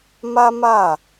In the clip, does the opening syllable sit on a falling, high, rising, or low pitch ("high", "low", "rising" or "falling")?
high